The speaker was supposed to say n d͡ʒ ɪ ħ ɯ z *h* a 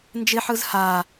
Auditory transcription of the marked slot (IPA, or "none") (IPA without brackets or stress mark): h